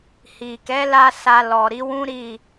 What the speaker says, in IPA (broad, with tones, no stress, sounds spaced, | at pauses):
h i˨ k ɛ˨˦ l a˧ s a˧ l ɔ˨ ɾ i˨˦ w ũ˦ ɾ i˦˨